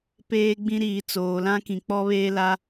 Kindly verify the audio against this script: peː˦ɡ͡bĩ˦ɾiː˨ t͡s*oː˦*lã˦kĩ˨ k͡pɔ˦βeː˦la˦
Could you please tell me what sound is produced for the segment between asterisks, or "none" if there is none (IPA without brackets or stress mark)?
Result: oː˨